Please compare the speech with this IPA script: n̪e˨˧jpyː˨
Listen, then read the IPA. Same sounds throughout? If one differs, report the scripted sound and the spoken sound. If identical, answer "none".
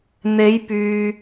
none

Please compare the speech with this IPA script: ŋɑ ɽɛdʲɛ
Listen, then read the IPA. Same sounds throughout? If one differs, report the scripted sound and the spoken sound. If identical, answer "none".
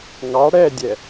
none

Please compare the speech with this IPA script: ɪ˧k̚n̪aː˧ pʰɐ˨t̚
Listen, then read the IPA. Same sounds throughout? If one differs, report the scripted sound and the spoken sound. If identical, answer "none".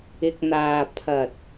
none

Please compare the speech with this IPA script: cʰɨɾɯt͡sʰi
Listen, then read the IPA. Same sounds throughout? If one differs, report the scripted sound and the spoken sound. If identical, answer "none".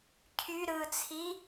ɨ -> y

